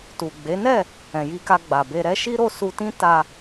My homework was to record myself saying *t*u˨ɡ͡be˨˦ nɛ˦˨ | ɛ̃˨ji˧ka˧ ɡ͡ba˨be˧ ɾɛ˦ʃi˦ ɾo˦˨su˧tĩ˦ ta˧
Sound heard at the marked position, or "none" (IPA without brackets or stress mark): t